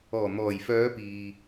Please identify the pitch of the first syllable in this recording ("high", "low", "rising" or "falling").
low